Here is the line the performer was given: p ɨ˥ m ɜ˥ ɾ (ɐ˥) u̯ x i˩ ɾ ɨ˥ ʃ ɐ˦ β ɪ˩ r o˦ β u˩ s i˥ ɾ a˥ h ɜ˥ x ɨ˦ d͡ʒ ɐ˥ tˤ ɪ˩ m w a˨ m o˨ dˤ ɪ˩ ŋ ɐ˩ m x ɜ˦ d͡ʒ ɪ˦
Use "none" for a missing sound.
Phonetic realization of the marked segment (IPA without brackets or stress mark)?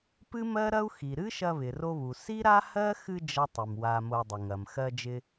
ɐ˥